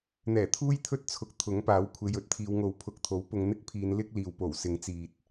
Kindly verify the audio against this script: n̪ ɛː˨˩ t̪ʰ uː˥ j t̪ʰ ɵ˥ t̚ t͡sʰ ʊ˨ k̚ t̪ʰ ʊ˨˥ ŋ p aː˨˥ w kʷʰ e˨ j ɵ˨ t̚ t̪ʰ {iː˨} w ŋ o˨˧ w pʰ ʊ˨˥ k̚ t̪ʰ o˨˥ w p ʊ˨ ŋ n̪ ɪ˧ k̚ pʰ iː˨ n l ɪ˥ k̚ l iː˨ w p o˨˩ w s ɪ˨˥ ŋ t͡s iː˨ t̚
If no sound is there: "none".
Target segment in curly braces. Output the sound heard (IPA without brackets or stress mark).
iː˨